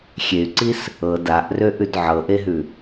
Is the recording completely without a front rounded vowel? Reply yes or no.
no